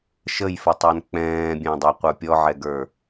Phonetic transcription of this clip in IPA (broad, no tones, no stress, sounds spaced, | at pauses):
ʃ ə j f ə tˤ æ n k͡p ɛ̃ː bʲ æ̃ dˤ æ qʷ ə˞ pʲ ɔ ʕ ɛ ɡ ə˞